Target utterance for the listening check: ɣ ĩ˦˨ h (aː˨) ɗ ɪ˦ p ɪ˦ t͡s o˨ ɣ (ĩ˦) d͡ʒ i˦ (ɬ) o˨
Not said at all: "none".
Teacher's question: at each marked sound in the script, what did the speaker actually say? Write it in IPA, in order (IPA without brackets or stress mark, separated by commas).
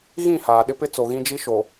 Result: aː˨, ĩ˦, ʃ